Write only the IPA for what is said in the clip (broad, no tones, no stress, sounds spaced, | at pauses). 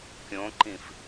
kʲ õ ǃ ĩ f